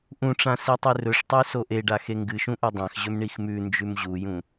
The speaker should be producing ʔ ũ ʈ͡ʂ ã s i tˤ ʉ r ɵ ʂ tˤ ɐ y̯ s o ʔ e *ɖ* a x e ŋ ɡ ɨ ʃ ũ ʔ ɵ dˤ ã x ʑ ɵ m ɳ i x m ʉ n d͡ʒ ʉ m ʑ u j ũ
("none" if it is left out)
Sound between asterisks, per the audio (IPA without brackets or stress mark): ɖ